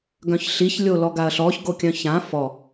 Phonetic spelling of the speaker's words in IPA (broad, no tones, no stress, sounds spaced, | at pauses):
ɡ œ̃ ç ɬ i ç lʲ o l ɔ ɡ a ɐ̯ ɬ ɔ ç ɡ o kʲ œ̃ ç ã f ɔ